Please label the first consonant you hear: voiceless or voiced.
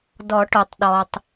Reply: voiced